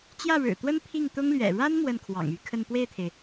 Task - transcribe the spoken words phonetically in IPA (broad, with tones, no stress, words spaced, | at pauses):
t͡ɕjä˥˩ɻɻ̩˨˩t̪wə˥n pʰi˥˩ŋt̪ʊ˥ŋlɥɛ̰˨˩ ɻa˥n mwə˥˩nkʰwɑ̰˨˩ŋy˥˧kʰə˥˧n pwe˥˩ɪ̯t̪ʰe˩ɪ̯